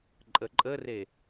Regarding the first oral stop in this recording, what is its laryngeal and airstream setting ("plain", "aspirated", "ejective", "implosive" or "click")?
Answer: click